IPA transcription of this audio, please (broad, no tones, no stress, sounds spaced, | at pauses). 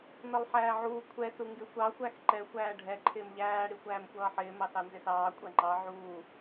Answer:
n ʌ lˠ ħ æː ʕ uː kʷʰ ɛ s u ŋ ɡ ɪ xʷ ɑ xʷ æ x ǃ ɛ xʷ æː ɖʱ ɛ ǃʰ ɪː m ʎ æː ɽ i xʷ æː m xʷ ʌː ħ ɪː m ɑ s ɑ n z ɪ s ɑː kʷʼ æ ŋ͡ǃ ɑ ʕ uː